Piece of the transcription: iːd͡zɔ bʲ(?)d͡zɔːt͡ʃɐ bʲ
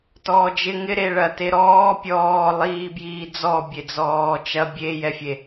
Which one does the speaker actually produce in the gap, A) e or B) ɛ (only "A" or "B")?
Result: A